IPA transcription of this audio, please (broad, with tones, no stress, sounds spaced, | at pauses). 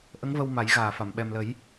ʔ ə˧˥ ŋ v ə˧ w m a˨˩˦ j ɣ aː˨˩ f a˨˩˨ m ɓ ɛ˨˩ m l ə˨˩˦ j